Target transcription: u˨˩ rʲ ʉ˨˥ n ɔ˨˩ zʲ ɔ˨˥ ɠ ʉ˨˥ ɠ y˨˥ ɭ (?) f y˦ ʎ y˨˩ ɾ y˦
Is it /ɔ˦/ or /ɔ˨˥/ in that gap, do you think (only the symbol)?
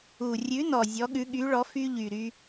ɔ˨˥